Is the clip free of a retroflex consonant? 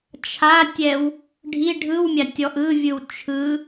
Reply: no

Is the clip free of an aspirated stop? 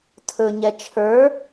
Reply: no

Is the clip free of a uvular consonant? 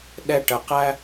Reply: no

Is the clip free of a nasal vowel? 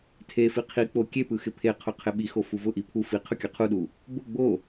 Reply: yes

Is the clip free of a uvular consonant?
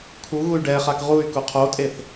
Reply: no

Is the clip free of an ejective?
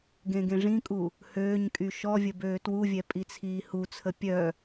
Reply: no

